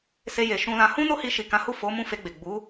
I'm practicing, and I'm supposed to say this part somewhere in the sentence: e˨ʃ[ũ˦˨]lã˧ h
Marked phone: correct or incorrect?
incorrect